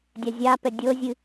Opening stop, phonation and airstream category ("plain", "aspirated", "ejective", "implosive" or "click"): plain